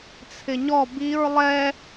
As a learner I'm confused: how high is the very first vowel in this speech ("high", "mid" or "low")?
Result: high